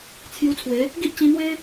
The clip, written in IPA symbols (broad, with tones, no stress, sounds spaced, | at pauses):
t͡sʰ j u˧ t͡sʰ w e˨˦ | ɡ i˦ ʔ t͡ɕ ĩ˧ n̪ w e˦